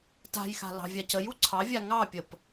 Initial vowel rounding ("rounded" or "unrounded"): unrounded